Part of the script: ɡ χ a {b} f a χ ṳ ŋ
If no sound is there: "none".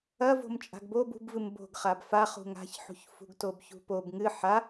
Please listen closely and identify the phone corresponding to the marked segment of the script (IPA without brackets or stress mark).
b